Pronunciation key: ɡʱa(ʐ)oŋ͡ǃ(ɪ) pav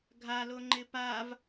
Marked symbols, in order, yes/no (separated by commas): no, yes